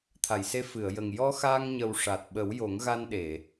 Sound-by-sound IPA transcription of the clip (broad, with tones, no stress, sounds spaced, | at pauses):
t̪ʰ a˨˩˨ j s e˧ f ɨ˨˩˨ ə̯ j ə˨˩ ŋ j ɔ˧ x aː˧ ŋ ɲ ə˨˩ w ʂ a˨˩ t̚ ɓ ə˨˩˦ w j o˨˩˦ ŋ ɣ a˧ n ɗ e˨˩˨